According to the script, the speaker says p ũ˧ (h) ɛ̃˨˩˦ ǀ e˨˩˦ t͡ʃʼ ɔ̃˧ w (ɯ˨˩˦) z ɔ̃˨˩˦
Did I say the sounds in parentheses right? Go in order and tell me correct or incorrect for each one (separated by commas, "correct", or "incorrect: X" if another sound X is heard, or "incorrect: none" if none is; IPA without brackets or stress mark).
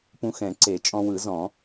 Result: incorrect: x, correct